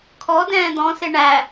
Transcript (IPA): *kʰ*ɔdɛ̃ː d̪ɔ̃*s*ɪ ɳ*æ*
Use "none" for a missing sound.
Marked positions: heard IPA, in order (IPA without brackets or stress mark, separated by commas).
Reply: kʰ, s, æ